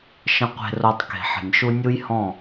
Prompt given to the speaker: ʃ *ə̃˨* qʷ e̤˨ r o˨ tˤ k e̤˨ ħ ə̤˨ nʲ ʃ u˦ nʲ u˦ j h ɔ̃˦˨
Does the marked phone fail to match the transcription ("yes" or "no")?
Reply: no